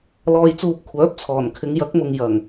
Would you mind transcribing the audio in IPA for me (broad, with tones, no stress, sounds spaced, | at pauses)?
l ɔː˧ j t͡s uː˧ p̚ kʷʰ œː˨˥ p̚ t͡sʰ ɔː˨˩ n kʰ ɪ˨˧ ŋ j ɐ˨˥ k̚ m ʊ˨ ŋ j ɐ˨˩ ŋ